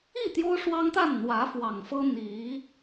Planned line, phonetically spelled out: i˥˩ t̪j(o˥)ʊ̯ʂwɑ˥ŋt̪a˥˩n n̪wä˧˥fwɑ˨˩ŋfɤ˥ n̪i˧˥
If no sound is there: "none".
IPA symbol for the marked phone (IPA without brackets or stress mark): o˥